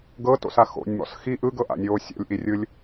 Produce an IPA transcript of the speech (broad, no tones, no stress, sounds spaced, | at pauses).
ɡ ɤ t o̰ s a x o̰ nʲ m ɔ̰ s x i ʔ ɯ ɡ ɤ ʔ a̰ nʲ oː sʲ ɔ̰ lʲ ʔ i rʲ ɯ lʲ